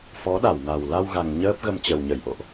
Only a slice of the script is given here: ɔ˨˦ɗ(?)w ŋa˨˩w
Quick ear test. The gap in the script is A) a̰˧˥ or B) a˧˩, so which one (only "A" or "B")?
B